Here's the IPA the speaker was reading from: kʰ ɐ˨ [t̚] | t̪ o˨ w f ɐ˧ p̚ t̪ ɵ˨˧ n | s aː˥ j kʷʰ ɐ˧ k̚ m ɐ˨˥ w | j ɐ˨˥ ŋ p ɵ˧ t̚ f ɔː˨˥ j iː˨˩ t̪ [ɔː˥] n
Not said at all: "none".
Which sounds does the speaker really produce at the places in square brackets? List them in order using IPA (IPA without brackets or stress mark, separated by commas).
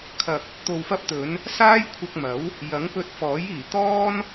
k̚, ɔː˥